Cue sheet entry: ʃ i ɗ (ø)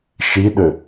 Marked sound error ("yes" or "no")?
no